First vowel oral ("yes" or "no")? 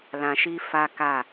no